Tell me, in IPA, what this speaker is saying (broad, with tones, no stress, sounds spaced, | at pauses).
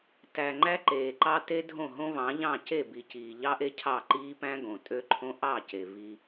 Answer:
t æ˨ ŋ͡ǃ æ˦ ǃ eː˨ ǃ ɑ˦ t e˦ dʱ õ˦˨ ɦ õ˦ v ɑ̃˨˦ ʎ ɑ̃˦˨ c e˦˨ b i˨ c iː˨ ʎ ɑ˦ ʔ e˦ cʰ ɑ˦˨ ǃ iː˦ p æ̃˦ ɡ õ˨ tʼ ø˦ ǃʰ õ˦ ʔ ɑ˦˨ c e˨ v i˦